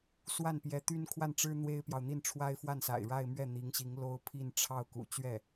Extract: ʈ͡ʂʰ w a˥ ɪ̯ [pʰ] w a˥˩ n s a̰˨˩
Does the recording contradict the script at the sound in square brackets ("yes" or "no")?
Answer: yes